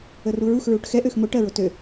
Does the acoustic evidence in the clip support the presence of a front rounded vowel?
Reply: yes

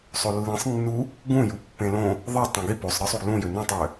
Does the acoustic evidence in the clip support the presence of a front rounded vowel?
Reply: yes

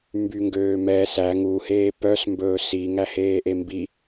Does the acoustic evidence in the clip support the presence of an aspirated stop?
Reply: no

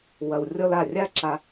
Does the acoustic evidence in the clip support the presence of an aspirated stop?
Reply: no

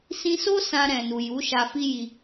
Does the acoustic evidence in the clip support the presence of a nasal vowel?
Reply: yes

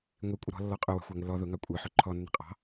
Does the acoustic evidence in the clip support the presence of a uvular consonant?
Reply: yes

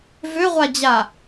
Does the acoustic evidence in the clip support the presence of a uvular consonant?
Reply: yes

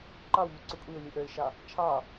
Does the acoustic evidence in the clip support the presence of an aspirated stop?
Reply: yes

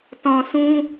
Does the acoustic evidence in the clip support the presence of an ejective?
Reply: no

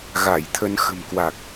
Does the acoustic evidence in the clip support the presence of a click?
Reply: no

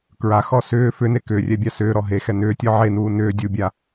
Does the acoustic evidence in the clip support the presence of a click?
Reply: no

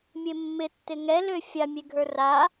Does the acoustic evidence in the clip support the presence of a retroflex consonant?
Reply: no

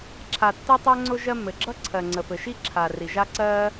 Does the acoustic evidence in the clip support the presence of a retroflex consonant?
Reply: no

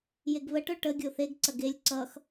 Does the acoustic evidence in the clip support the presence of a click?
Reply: yes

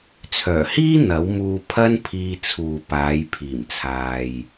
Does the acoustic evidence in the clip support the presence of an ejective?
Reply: no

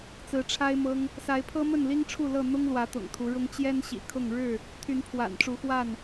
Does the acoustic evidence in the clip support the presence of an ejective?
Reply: no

